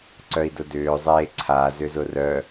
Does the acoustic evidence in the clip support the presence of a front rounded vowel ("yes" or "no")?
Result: yes